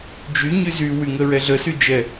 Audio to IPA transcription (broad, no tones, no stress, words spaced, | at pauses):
d͡ʒyɲy zywyŋəɹɛ ɮəsyd͡ʒɛ